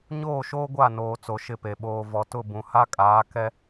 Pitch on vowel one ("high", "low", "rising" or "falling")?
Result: falling